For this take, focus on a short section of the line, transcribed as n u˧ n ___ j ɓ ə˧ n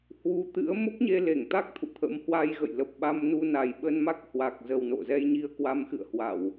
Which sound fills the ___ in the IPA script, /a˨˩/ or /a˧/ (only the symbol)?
a˨˩